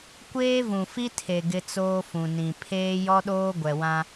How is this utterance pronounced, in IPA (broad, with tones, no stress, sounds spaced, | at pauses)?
kʷ eː˦ v ũ˨ f i˦ tʰ e˨ ɡ ɪ˦ t͡s oː˦ f ũ˨ n ĩ˨ pʰ eː˦ j ɔ˦ ɗ oː˦ ɡʷ ɛ˨ w ã˦